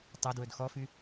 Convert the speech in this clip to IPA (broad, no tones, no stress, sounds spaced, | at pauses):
tˤ ɐ d w ɵ d x ɔ f y